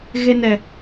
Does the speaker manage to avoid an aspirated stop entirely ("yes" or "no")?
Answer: yes